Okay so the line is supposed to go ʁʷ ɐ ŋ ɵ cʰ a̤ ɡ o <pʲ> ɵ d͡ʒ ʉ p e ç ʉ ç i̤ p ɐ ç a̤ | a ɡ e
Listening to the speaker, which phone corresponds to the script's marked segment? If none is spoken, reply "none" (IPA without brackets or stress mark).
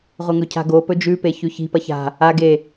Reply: p